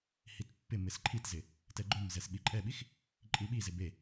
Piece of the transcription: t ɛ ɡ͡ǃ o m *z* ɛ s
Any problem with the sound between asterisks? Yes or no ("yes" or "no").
no